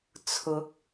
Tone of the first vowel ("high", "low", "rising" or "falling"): rising